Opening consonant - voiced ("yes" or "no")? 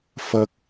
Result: no